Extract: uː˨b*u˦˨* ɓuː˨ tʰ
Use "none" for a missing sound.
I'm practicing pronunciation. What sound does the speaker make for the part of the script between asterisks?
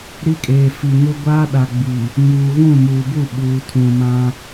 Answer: u˦˨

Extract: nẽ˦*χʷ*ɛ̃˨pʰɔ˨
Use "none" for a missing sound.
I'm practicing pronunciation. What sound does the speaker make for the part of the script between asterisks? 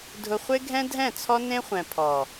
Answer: χʷ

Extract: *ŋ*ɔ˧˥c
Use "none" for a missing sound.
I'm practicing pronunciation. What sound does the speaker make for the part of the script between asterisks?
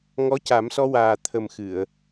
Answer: ŋ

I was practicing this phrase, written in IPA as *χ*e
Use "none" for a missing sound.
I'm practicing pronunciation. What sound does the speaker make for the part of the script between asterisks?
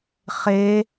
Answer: χ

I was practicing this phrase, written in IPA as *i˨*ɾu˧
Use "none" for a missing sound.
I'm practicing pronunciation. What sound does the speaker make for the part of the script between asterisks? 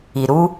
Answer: i˨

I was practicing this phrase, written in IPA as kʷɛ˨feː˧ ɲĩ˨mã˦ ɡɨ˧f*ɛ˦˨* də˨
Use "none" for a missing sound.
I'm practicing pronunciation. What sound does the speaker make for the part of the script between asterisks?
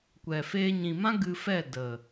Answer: ɛ˦˨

